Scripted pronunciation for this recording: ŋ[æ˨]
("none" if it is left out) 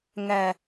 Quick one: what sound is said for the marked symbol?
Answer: æ˨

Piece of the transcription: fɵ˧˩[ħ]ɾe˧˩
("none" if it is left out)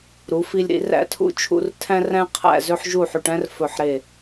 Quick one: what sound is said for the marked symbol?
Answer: ħ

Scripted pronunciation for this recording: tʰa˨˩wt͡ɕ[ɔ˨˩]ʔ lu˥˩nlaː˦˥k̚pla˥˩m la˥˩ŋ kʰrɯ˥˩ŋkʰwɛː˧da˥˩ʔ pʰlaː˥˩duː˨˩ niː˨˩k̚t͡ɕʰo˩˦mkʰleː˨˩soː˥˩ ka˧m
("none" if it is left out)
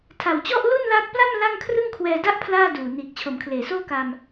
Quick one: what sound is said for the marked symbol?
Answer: ɔ˥˩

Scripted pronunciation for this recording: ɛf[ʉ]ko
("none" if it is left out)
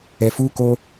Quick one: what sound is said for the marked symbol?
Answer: u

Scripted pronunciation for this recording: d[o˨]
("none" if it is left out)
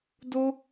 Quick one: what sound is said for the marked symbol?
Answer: o˦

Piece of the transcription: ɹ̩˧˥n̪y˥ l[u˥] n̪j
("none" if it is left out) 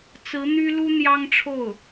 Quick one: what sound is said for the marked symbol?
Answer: u˥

